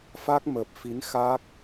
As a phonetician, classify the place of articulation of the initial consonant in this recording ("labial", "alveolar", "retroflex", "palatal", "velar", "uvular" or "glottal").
labial